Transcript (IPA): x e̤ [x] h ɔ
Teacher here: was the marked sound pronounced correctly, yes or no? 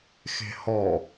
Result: no